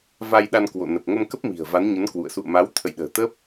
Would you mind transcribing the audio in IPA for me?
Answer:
v a˧ j ɗ a˧ n k w o̰˧˨ n ə˨˩ p̚ ŋ ə˧ m k ə˦˥ p̚ m i̤˨˩ ə̯ v a˨˦ n ɲ ə˨˦ n k w ṵ˧˨ ə̯ s ṵ˧˨ ə̯ m a˨˦ w t̪ʰ ə̰˧˨ j ɗ ə̤ː˨˩ t̪ ə˦˥ p̚

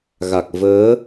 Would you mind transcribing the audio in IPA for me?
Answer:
ɣ a˨˩ k̚ v əː˨˦

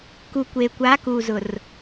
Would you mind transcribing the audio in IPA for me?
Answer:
k u˨ kʷ eː˨ kʷ aː˨˦ k uː˨ z ʊ˨ r

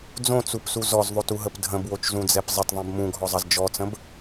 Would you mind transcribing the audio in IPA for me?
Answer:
d͡z õ t͡s u p s u z ɔ z ðˤ o t u ɦ ə p dʱ ə̃ b w o t͡ʃ z ũ d͡z ɛ p zˤ ə t ðˤ ɛ̃ b m ũ ɡʱ ɔ zˤ ʌ z d͡ʒ ɔ t͡s ə̃ b

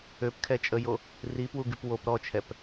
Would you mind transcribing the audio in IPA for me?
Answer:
ø p kʰ ɛ t͡ʃʼ ə j o | r i p w u ɡ y p w o p ɾ ɔ t͡ʃʰ ɛ p

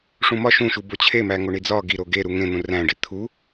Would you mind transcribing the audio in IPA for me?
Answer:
ʂ ũ m ɒ ʃ ũ ʃ u b o t͡ɕʰ e m æ ŋ o ɳ i d͡z ɒ ɡ i ɾ o ɡ e ɾ u ŋ ẽ n̪ ũ r æ̃ ɖ i t̪ʰ u

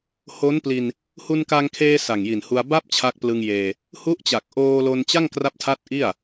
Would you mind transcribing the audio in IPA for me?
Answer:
h o˦˥ n p l i˧ n | h u˧ n k a˧ ŋ kʰ eː˧ s a˨˩ ŋ j i˨˩ n h u˧ a̯ b a˥˩ p̚ t͡ɕʰ a˦˥ k̚ p l ɯ˧ ŋ j eː˧ | h u˦˥ ʔ t͡ɕ a˨˩ k̚ ʔ oː˧ l o˧ n t͡ɕ a˥˩ ŋ k r a˦˥ p̚ tʰ a˦˥ t̚ ʔ i˥˩ a̯

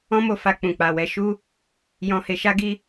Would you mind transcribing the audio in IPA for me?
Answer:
ɔ̃˦ m o˧ f a˧ k͡p ũ˨ k͡p a˨ w ɛ˧ ʃ u˦ | j ɔ̃˧ h e˧ ʃ a˦ ɡ i˦

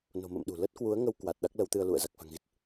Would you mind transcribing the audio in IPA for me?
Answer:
n o̤˨˩ m ə̰ː˧˨ m ɗ ṳ˨˩ l ə˦˥ t̚ k w u˨˦ ə̯ ŋ ə˧ w k w a˨˩ t̚ ɗ a˦˥ k̚ l ə˨˦ w t̪ ɨ˧ ə̯ l ṵ˧˨ ə̯ z a˨˩ k̚ f a̤˨˩ ŋ ɣ i˦˥ t̚

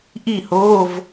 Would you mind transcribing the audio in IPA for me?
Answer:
ʔ i˥˨ h oː˧˥˧ v

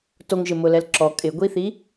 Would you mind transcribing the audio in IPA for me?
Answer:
t o ŋ ʒ ɪ m ʊ l ɛ l ǁ ɔ kʼ ɪ ɡʷ i θ i

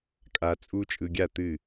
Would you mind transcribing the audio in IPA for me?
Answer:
kʼ a˦˥ t͡sʼ u˦˥ t͡ʃʼ ɯ˧ ɡʲ a˥˩ t̪ ɨ˥˩

